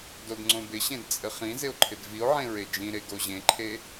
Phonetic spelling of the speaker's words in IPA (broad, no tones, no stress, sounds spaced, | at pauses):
d o d ŋ͡ǀ õ b ɪ ɕ ẽ d t͡sʼ ɘ χ ĩ z ɪ o̯ ǃʰ ɪ d v i o̯ ʕ ẽ ɹ e d͡ʒ ĩ ɾ e ɡ o ʑ ẽ ǃʰ e